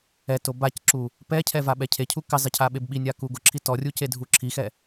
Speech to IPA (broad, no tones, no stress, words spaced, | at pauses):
ɛto bacǁu | pɛcʰɛ vaɓɛcʰecʰu kɪzˤɪ cʰaɓebɓinʲa kuɡʊǁʰi tɔrʲu cedʱuǁʰixɛ